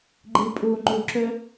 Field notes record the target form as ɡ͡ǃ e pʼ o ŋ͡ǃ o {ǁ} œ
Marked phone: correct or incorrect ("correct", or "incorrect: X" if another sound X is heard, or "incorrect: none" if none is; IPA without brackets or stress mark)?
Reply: correct